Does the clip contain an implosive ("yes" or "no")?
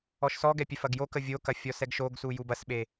yes